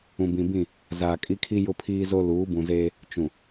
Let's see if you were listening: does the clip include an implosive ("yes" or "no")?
no